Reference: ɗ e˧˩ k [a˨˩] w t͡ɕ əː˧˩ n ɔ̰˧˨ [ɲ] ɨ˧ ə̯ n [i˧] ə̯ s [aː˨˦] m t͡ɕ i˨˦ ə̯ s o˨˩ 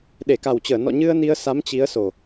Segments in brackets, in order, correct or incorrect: correct, correct, correct, incorrect

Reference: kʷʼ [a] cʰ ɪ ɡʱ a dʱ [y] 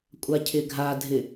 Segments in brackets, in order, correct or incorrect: correct, incorrect

